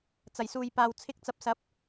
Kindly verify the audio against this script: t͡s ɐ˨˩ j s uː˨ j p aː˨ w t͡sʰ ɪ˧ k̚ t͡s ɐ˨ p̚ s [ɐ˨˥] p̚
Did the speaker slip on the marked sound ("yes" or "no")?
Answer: no